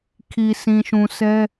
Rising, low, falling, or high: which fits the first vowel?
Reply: low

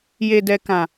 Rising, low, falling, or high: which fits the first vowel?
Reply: low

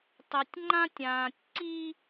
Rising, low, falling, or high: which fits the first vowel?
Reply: low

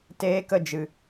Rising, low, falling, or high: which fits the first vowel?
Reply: high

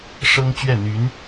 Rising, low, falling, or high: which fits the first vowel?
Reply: high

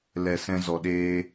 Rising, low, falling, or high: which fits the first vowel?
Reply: low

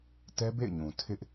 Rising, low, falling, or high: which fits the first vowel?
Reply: high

